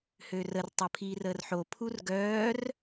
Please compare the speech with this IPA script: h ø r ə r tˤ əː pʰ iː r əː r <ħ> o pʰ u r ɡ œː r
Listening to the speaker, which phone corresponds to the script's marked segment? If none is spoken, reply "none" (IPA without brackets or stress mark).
ħ